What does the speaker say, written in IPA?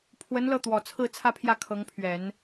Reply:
pʰ w ə˧˥ n l ɤ˥˩ t̪ w ɔ˨˩ t͡sʰ ɹ̩˥˧ t͡sʰ ä˥˧ pʰ j ä˥˩ kʰ ɤ˧˥ ŋ pʰ ɥ ɛ˨˩˦ n

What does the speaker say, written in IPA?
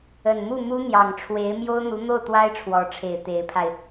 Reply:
ə˨˩ n m u˥˩ m u˥ n̪ j ɑ˨˩ ŋ ʈ͡ʂʰ w e˧˥ ɪ̯ m j o˥ ʊ̯ n̪ u˧˥ n̪ o˥˩ ʊ̯ t̪ w a˥ ɪ̯ ʈ͡ʂʰ w ɔ˧˥ ʈ͡ʂʰ e˨˩ ɪ̯ t̪ e˧˥ ɪ̯ pʰ a˧ ɪ̯

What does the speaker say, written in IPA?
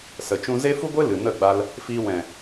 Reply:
s ə˨ t͡ʃ ũ˧ z e˦ f u˦ ɡʷ e˦ l ɨ˨ n ə˦˨ ɡ͡b a˧ l | f iː˧ w ɛ̃˨

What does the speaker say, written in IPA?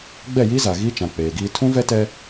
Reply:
ɡ͡b ɛ˦˨ j i˦ z a˨ ɣ iː˦ t͡ʃ ã˨ k͡p eː˨ ɡ iː˦ tʰ ũ˦ v ɛ˦ t ɛ˦

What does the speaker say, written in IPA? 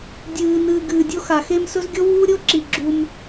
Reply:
dʲ ɨː˨ n ɨː˧ ɡ ɨː˧ dʲ o˦ x a˨ x e˧ m s ɵ˦ z ɡʲ o˦ w uː˦ ɾʲ o˦ ǁ i˧ ɡ͡ǁ u˧ m

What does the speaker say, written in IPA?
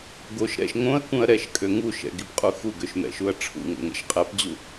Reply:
ɡ o ʃ ɾ ɛ̰ ʃ ŋ õ ɐ̯ k ũ ɐ̯ ɾ ɛ ʃ kʼ ø ŋ u ʃ ɛ̰ ɡ i p qʼ u x u ɡ ø ʃ m ɛ̰ ʃ u ɐ̯ ʈ͡ʂʰ ṵ ŋ o̰ ŋ ɛ̰ ʃ qʼ ɛ p d͡ʑ u

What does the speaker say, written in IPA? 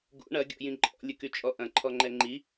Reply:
ɡ ṵ ɳ ɐ ɡʲ ɔ̰ j ĩ ǃʼ ɔ̰ lʲ ə k y t͡ʃʼ ɔ ʔ ɐ̃ ǃʰ ɔ ŋ͡ǃ ɛ ŋ͡ǃ i

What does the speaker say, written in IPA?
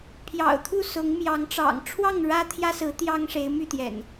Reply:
pʰ j ɑ̰˨˩ ʊ̯ t̪ʰ u˥˨ s ʊ˨˦ ŋ m j ɑ˨˦ ŋ ʈ͡ʂ ɑ̰˨˩ ŋ ʈ͡ʂʰ w ɑ˥˨ ŋ ɻ ä˦ t̪ʰ j ä˦ s ɹ̩˨˦ t̪ j ɑ˦ ŋ ʂ e˨˦ ɪ̯ m y˥˨ t̪ j ɛ̰˨˩ n

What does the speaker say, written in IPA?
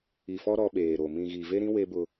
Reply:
i˨ f ɔ˦ ɾ ɔ˦ ɓ eː˨ ɾ o˨ m ĩ˨ ɣ i˨ v e˦ ɾ ĩ˦ w e˦ b ʊ˦

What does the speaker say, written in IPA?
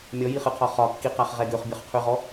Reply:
mʲ ɔ j i χ ɨ qʰ ɒ χ ɒ kː i q a χ ʁ ɛ ɡ ø χ bʲ ɒ χ qʰ ʉ ʁ ɔ

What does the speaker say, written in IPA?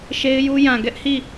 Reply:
ʃ e˦ ɪ̯ j u˦ j ã˨ ɡ ɛ˦ ʔ h i˦˨

